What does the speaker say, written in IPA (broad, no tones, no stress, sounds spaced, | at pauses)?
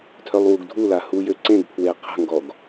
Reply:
tʰ œ lˠ w u ɡ dʱ u l a h u j ø ǀ ẽ ɡ pʰ w e qʰ ə̤ ŋ ɡ ɔ ɡ